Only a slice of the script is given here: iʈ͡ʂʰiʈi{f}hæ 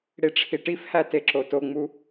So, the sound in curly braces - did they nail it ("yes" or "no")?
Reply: yes